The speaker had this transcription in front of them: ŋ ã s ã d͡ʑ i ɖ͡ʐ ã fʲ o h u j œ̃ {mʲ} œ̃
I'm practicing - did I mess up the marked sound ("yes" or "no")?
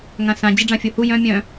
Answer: no